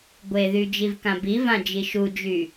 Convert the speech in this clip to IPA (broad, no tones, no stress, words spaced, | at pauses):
ɡʷeðy d͡ʒivkãbivã d͡ʒiʃud͡ʒy